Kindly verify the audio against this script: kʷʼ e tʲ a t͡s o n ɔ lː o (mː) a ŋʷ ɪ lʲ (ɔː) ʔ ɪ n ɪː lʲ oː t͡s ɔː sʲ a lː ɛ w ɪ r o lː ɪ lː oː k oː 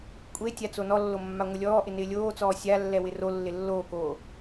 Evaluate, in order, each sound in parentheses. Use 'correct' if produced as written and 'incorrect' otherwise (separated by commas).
correct, correct